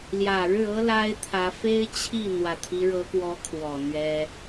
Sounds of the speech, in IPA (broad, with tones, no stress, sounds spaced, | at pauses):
l j ä˨˩ ɻ ɻ̩˥˩ ɤ˥ l a˥ ɪ̯ t̪ʰ ä˧˥ f e˥ ɪ̯ t͡ɕʰ i˥˩ n̪ w ä˨˩ t̪ʰ i˦ ɻ ɤ˧˥ k w ɔ˧˥ kʰ w ɔ˨˩ n̪ ɥ ɛ˥